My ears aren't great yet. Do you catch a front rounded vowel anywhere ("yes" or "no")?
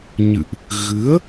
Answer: no